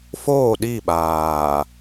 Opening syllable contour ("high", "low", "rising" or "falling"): falling